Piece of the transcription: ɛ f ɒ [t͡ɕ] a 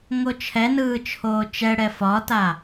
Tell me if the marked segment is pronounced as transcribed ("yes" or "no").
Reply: no